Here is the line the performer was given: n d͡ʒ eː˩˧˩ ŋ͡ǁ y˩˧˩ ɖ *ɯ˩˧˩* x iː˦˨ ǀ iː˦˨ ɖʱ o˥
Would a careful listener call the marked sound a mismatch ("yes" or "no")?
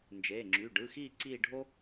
no